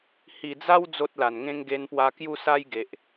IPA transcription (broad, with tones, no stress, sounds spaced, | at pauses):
h i˨˩ d͡z a˦ w d͡z o˦ t̚ l a˨˩ n ŋ ẽ˦ ŋ ɡ e˧ n p w a˧ k j u˥˧ s a˦ j ɡ e˨ ʔ